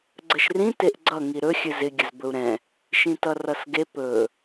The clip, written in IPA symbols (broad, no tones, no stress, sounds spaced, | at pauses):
ɡ͡ǀ ə ʃ r ĩ t e ʔ ɡ͡ǀ ʌ ŋ i ɾ ɵ xʲ ɨ z ɪ ɡʲ ə z b ɵ u̯ ɾ ɛ̃ | ʃ ĩ t ʌ r ʌ s ɡ e p ɵ